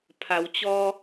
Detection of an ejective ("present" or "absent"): absent